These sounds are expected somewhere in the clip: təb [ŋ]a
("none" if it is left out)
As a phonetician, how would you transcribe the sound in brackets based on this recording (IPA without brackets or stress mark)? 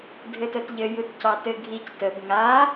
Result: ŋ